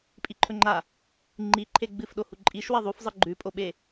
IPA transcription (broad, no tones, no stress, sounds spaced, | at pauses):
pʼ i ǃʰ ɵ ŋ͡ǃ a | ŋ͡ǃ i ǃʰ e ɡ͡b ɨ f ɗ o h u ǃʼ i ʃ w ɐ ðˤ u f zˤ ɨ ɡ͡ǃ ʉ pʼ o ɓ e